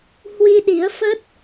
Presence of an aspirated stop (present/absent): absent